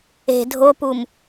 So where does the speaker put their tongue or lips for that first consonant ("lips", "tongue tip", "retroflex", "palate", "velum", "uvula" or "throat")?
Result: tongue tip